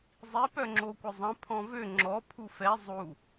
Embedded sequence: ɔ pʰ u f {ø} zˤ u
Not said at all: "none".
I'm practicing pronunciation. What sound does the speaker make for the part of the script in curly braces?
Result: ɛ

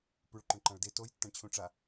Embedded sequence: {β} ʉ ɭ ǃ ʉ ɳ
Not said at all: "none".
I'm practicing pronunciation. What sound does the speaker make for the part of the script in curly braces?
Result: p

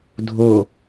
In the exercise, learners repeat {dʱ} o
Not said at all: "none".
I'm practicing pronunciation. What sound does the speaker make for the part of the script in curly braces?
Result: dʱ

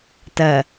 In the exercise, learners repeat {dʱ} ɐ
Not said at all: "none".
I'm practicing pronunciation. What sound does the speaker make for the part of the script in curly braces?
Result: t̪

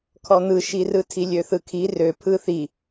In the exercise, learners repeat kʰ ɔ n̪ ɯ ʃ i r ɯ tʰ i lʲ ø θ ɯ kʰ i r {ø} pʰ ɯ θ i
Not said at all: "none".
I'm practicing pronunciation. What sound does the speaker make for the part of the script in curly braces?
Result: ø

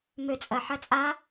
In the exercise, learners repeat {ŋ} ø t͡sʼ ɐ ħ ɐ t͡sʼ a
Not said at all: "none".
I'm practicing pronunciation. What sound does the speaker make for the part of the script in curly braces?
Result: m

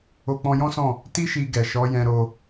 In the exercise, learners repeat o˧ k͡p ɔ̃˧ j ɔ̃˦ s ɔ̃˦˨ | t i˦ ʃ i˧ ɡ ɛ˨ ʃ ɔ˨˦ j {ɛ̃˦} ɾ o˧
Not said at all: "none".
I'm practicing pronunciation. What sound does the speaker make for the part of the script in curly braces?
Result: ɛ̃˧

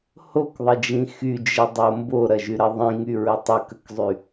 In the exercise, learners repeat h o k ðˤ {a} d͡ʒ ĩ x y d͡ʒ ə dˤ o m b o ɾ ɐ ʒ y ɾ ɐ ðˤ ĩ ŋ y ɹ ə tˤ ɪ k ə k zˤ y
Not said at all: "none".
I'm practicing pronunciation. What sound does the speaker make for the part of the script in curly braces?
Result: ə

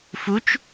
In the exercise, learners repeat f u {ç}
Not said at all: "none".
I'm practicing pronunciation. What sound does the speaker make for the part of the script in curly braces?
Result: t͡ʃ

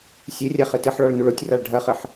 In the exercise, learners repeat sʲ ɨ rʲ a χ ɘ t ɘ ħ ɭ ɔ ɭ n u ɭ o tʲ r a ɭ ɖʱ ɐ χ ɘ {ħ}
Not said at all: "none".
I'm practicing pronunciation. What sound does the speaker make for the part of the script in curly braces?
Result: ħ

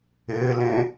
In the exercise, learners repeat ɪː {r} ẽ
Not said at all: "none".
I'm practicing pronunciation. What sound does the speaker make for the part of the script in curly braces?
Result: l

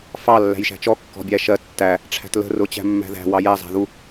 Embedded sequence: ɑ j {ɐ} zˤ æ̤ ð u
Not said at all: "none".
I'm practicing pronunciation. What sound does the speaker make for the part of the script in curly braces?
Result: æ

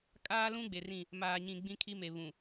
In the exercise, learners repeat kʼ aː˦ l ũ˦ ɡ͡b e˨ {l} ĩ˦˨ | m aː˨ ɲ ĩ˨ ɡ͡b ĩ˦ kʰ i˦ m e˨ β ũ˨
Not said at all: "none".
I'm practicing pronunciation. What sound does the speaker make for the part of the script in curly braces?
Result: r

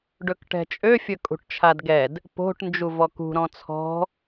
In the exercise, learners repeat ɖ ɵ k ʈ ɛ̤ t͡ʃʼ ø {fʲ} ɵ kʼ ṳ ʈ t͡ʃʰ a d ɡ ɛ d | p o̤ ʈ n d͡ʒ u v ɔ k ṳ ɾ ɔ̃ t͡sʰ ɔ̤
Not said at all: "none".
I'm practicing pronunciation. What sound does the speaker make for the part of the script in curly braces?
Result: fʲ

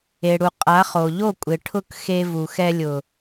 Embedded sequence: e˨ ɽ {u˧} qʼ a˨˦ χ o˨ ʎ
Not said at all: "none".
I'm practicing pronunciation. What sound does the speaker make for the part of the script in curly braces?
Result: u˨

